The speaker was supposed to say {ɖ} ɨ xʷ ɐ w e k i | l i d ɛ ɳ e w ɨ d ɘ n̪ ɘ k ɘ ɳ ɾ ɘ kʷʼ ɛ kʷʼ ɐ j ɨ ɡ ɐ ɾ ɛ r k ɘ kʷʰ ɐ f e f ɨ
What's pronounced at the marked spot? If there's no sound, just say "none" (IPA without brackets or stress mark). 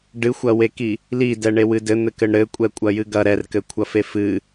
ɖ